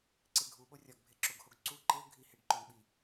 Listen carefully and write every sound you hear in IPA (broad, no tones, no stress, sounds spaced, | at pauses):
ǀ e ɡʱ u ɓ o rʲ ɒ ɡ bʱ e ǁ o ɡ h o ɡ ǀ u ǃ e o̯ ɡʱ i h e ɖ ǃ o n ɓ i